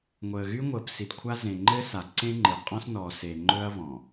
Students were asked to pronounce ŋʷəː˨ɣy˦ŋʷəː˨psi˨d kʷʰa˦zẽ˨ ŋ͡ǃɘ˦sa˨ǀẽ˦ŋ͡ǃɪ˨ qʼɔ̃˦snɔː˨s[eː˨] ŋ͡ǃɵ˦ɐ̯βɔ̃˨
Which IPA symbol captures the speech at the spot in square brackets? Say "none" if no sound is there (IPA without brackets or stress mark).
e˨